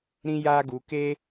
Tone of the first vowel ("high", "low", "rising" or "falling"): high